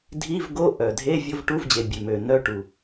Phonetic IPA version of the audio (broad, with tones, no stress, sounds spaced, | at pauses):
dʱ i˧˥˧ v ɡ o˧˥˧ ʔ œ˩ dʱ e˧˥˧ vʲ o˧˥˧ v ʈ u˧˥˧ v d͡ʑ e˩ bʲ ø˩ m ø˩ n œ˧˥˧ ʈ u˩